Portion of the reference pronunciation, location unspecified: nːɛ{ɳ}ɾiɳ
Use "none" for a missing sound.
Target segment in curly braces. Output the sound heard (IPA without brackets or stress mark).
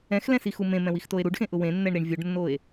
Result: ɳ